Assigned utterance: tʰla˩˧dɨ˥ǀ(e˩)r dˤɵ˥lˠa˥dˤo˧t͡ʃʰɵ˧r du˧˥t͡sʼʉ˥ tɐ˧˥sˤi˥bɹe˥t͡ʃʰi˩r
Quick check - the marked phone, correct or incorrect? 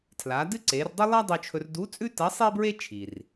incorrect